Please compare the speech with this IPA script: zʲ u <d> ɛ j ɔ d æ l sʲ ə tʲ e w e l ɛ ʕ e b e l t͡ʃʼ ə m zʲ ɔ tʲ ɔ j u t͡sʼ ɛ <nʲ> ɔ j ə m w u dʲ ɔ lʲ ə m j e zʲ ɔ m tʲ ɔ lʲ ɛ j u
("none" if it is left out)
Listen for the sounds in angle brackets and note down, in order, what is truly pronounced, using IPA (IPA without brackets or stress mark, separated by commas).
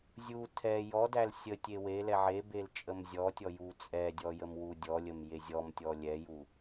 tʰ, dʲ